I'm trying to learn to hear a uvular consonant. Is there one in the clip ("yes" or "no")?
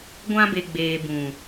no